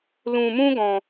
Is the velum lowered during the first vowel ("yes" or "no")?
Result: yes